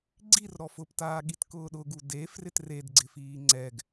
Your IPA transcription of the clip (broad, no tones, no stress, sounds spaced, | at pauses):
ɡ͡ǀ i r ɾ ɔ f ʊ p t aː ɠ i t k ʊː ɗ ʊ ɡ u d e f r ɪ t r e d ɡ͡ǀ ɪ f iː ŋ͡ǀ ɛ ɡ